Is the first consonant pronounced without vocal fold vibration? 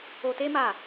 yes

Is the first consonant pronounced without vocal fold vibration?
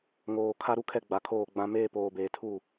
no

